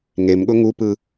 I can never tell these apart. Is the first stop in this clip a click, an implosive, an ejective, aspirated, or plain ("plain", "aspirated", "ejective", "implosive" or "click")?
implosive